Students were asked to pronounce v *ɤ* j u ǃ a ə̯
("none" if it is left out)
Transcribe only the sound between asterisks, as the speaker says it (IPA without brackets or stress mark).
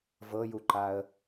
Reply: ɤ